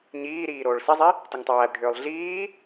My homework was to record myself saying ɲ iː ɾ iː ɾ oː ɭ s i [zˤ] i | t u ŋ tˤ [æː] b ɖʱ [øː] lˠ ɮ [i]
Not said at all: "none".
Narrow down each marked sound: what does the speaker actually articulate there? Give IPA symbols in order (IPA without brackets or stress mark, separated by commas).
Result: zˤ, æː, øː, iː